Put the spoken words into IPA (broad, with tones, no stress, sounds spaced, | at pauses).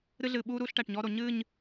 ɾ ɨ˦ ɮ ɨː˨ ɓ uː˦ ɾ uː˦ ɬ ʈ æ˨ ʈ ɲ ɔː˦ ɾ o˨ ɲ ɨː˦˨ ɲ